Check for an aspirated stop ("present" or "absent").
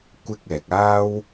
absent